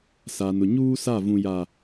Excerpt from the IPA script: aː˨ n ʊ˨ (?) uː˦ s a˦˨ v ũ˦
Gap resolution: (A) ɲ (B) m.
A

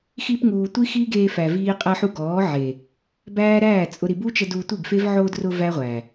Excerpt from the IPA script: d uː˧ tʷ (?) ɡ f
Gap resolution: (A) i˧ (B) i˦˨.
B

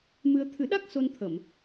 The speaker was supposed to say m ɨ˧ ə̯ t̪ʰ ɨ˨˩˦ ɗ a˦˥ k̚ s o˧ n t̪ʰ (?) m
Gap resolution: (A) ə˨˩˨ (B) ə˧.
A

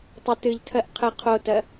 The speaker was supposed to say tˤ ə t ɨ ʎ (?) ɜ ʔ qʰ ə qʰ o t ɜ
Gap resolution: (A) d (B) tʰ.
B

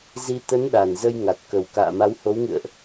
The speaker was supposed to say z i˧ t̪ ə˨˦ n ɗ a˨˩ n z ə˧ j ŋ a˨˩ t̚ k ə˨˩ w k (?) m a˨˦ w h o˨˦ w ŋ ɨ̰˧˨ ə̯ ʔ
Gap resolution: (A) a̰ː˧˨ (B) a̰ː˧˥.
A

